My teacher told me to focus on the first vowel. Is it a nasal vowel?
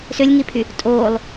no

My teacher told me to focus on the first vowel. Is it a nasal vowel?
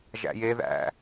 no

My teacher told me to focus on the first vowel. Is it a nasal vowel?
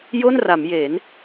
no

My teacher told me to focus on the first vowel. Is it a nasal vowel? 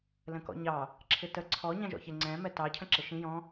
yes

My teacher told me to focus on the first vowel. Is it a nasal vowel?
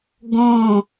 yes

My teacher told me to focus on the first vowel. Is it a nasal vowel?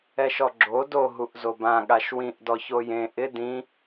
no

